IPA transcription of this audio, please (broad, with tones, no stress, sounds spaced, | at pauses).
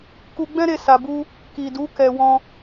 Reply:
k u˧ ɡ͡b ɛ̃˦ ɾ e˧ s a˨ b u˧ | k i˨ d u˨˦ k ɛ˧ w ɔ̃˧